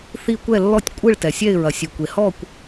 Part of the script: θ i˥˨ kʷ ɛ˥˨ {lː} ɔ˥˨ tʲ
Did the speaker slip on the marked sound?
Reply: no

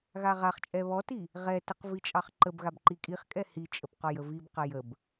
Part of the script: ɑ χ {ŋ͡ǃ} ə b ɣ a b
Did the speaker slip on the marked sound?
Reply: yes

